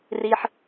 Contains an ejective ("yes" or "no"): no